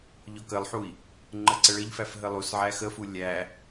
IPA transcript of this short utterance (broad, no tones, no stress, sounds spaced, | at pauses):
ʎ ɔ k ə lˠ ħ u i̯ | ŋ͡ǃ ə ǀ ə ɭ ə ʎ f æ f ɦ ə lˠ u s ʕ æ x ə f u lʲ æ